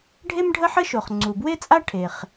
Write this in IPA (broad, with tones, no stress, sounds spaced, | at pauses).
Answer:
ɖʱ e˥ m ɖʱ ə˥ ħ ə˥ ʃ o˩ χ ŋ͡ǀ u˩ b w e˥ t͡sʼ a˥ ʈʰ e˩ χ